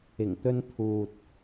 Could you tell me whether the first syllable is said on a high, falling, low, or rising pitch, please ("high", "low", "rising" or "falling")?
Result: low